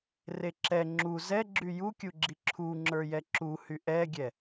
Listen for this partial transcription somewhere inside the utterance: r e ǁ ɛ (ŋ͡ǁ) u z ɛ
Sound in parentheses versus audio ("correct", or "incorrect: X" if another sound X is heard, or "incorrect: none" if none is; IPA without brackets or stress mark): correct